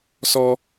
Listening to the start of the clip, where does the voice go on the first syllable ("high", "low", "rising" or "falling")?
high